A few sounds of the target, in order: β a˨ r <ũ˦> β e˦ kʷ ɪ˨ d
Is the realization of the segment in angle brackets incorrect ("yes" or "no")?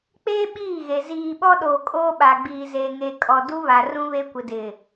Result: no